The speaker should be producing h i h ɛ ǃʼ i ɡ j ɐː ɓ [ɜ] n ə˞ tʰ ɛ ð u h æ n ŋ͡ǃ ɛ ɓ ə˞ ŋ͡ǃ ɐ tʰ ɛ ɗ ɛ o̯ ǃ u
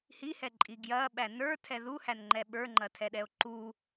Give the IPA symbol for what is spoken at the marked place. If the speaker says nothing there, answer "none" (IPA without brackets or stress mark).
æ